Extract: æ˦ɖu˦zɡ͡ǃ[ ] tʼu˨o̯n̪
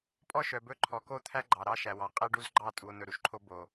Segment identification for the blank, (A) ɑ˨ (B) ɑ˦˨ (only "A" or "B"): B